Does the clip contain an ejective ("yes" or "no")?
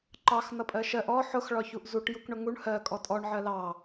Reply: yes